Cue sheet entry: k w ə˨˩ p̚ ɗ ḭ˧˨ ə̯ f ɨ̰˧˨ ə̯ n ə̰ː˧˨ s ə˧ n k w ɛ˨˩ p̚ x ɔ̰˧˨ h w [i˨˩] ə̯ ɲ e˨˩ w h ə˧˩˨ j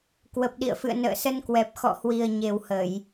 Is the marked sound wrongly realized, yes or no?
no